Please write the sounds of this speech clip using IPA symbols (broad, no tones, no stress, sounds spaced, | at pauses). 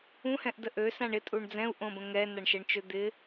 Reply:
ũ h ɛ̃ ʔ d ə ʔ ø s ã ɳ ɪ tʼ u ɳ d͡z ɛ̃ u̯ ʔ õ b ə̃ ŋ ɛ n a ɳ ʃ ɛ ɳ t͡ʃ ø d̪ ɪ